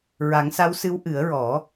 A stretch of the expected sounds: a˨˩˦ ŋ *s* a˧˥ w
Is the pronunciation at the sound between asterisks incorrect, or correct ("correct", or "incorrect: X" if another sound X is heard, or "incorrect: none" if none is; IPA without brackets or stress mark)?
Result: correct